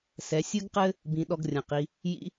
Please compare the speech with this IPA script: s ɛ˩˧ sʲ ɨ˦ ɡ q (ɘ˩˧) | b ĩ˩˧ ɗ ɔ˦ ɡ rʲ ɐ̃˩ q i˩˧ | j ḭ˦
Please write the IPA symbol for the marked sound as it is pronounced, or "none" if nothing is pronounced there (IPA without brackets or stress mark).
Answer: ɘ˦